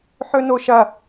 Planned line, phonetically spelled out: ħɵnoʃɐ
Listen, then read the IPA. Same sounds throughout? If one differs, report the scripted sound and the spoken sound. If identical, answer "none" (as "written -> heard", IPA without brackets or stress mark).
none